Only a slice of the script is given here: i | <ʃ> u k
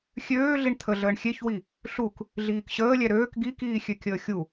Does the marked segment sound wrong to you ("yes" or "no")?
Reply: yes